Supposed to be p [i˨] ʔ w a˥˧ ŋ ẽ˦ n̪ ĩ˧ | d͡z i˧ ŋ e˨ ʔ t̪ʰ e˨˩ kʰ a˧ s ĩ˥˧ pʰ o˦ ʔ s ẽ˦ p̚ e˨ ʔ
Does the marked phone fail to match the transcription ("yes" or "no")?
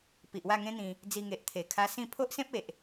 no